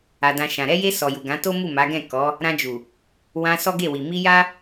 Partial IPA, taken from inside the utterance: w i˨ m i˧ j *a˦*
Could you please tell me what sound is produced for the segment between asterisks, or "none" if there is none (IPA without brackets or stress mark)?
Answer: a˦